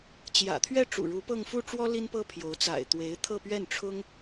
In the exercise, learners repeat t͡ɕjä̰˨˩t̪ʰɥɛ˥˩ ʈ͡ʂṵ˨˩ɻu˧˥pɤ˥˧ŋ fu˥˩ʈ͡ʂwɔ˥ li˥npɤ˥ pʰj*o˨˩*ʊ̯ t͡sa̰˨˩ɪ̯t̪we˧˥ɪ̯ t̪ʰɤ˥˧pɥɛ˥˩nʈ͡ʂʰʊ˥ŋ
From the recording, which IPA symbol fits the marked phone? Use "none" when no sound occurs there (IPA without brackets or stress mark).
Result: o˧˥